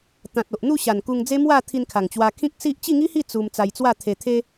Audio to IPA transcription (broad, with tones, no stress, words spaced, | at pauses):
t̪ã˨t̚o˨ʔn̪u˥˧ɕa˨˩n ku˧ŋd͡ze˦ mwa˥˧t̪ʰi˧nkʰa˨˩ŋt͡ɕwa˧ kʰĩ˦k̚ si˦ʔ t͡ɕi˥˧ŋi˦hi˥˧ t͡su˧m t͡sa˧jt͡swa˥˧t̪ʰe˧ t̪ʰe˦